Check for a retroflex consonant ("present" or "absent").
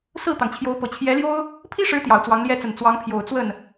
present